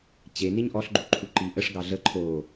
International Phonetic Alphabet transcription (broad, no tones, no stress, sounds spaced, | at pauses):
t͡ɕ e n i ɲ ʔ ɔ ɬ ɡ͡ǃ u ǃʰ u ǃ i ʔ ə ʂ ɡ ɑ ɮ ə ǃʰ o